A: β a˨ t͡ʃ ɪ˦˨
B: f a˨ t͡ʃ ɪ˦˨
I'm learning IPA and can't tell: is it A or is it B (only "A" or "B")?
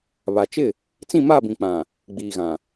A